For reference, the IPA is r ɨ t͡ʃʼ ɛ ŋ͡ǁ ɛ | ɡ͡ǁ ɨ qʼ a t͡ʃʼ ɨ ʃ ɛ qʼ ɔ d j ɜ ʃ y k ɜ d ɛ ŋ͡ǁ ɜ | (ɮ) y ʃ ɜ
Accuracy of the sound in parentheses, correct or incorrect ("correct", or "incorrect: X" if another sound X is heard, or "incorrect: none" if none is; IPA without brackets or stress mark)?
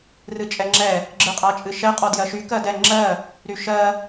incorrect: ɾ